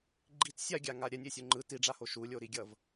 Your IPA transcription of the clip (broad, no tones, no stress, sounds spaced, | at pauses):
ɡ͡ǃ i t sʲ a ɡʲ a ŋ a ɾʲ ɛ nʲ e sʲ u ŋ͡ǃ ɯ t i ɖ͡ʐ a h o ʃ u lʲ o ɾ i ɡʲ ʌ v